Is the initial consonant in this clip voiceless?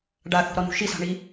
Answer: no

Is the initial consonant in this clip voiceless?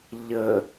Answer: no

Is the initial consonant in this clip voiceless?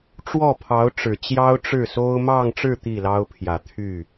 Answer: yes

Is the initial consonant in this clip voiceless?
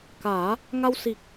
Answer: yes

